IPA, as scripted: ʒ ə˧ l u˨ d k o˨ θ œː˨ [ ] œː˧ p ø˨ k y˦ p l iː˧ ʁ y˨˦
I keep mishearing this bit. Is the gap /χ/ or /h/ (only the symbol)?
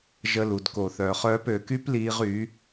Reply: χ